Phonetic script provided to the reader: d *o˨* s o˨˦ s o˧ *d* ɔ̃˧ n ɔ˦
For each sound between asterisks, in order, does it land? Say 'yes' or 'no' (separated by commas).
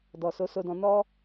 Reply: no, yes